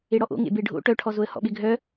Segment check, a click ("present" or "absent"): absent